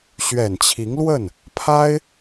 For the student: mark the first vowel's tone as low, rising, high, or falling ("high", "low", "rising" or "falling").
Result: low